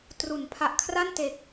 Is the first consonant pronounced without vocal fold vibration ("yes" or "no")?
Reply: yes